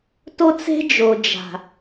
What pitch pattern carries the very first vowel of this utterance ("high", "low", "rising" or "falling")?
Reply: high